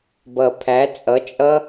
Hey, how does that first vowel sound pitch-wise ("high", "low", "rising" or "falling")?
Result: low